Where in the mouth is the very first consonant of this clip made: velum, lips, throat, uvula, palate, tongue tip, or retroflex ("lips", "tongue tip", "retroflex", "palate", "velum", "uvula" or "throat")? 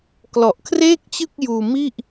velum